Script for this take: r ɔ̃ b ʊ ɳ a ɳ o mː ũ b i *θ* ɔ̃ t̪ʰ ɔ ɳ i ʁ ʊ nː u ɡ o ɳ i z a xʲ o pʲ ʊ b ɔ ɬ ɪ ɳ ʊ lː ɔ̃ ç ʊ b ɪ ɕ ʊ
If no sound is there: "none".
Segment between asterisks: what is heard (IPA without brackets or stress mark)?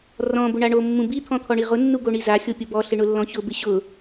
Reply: t̪ʰ